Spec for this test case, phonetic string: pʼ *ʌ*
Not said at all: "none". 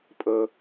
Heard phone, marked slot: ə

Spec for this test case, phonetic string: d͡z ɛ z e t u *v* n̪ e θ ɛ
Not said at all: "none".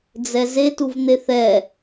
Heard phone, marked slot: v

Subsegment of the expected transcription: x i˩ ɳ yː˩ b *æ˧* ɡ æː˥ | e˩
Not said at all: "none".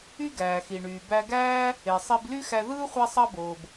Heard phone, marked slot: æ˧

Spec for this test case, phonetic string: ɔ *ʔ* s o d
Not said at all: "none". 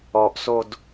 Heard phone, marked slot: ʔ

